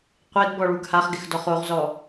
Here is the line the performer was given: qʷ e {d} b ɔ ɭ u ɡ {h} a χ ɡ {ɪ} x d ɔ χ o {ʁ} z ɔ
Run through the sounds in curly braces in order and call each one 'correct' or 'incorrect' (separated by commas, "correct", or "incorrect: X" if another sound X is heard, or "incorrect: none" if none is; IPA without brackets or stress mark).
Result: correct, correct, correct, correct